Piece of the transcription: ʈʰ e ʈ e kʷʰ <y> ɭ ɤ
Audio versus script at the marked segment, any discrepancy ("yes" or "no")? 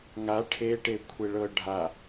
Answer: yes